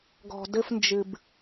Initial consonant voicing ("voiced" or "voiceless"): voiced